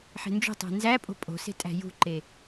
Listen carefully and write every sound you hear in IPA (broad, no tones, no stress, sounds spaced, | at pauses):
ħ e̤ n d͡ʒ o̤ tˤ æ̤ n z æ pʼ o̤ pʼ o̤ s e̤ tʼ æ̤ j ṳ ǃ e